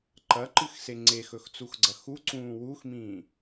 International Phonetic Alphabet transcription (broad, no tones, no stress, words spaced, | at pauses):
ǃɐǃɨxse ŋ͡ǀexɵxt͡suxɡ͡ǀɐ xuǀũː wuxmĩː